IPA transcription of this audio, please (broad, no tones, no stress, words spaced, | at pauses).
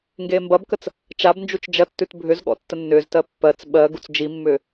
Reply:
ŋɡeːmbɐbkət͡s | t͡ʃabnd͡ʒut͡ʃ d͡ʒɐtːʉt bʱʏzɠɔ̰ tːənːʏːztɜ pːɜt͡s ɓɜ ɡut͡sd͡ʒimːʏː